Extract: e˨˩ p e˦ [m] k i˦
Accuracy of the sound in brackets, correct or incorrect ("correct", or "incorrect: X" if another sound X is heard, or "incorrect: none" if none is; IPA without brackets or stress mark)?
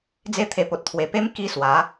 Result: correct